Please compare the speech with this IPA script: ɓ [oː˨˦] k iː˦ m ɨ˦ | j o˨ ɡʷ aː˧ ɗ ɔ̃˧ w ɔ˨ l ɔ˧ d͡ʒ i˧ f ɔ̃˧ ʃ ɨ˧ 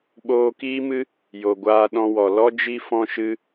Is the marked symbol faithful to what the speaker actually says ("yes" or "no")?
no